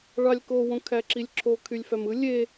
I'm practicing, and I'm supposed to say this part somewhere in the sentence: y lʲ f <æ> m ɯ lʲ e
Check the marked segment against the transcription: correct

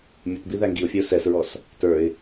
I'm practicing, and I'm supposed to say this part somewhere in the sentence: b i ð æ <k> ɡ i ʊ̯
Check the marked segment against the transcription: incorrect: ŋ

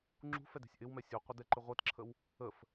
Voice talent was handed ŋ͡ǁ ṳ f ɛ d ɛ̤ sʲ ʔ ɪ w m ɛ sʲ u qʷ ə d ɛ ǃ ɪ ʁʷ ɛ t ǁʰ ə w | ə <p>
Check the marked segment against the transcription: incorrect: f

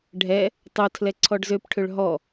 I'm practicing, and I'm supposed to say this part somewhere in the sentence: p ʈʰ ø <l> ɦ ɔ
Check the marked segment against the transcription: incorrect: ɭ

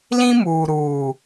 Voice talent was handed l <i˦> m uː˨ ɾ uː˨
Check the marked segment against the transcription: incorrect: ĩ˦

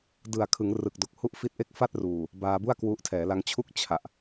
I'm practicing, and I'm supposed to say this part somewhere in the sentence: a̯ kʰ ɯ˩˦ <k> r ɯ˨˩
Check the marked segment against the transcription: incorrect: ŋ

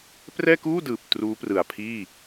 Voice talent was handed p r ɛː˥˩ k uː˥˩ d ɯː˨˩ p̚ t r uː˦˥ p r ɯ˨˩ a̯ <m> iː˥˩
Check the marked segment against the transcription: incorrect: pʰ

